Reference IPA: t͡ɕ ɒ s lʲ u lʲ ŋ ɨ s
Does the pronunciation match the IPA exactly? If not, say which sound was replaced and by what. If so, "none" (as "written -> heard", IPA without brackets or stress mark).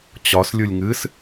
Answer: none